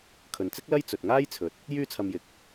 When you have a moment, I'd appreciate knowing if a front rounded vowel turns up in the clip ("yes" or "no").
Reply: yes